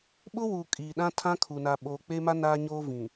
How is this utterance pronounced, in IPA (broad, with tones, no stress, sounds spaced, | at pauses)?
ɓ ʊ˦ w u˨ kʼ iː˨ ɗ ã˦ tʰ ã˦ kʰ u˨ n a˨ ɓ o˨ k͡p e˦ m a˦ n aː˦ ɲ oː˦ v ĩ˨